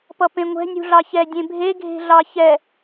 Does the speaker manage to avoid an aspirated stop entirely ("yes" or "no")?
yes